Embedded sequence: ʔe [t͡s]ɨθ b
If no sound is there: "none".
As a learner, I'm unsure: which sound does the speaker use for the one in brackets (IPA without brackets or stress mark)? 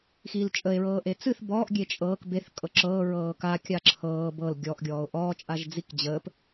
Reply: t͡s